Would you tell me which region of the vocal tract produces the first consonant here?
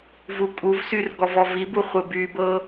lips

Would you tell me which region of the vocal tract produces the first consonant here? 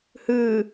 throat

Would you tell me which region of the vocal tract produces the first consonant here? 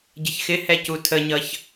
palate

